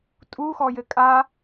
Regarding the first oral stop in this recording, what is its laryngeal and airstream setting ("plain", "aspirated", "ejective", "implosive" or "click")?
ejective